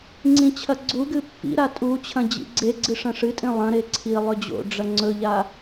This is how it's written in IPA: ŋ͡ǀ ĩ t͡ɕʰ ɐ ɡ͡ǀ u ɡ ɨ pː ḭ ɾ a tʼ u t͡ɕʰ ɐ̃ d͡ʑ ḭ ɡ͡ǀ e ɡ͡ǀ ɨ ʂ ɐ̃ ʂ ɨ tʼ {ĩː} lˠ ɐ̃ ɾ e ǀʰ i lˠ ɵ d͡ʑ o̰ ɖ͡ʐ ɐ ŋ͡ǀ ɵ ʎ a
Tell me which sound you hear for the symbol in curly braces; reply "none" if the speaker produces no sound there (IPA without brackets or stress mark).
ĩ